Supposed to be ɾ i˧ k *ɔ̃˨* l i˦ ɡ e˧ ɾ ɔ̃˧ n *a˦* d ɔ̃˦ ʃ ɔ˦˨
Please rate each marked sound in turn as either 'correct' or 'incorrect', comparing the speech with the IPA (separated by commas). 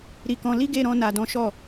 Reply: incorrect, incorrect